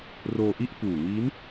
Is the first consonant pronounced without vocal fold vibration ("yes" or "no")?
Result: no